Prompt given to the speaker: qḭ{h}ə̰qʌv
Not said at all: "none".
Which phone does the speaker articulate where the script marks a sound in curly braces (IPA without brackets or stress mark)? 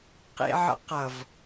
ʕ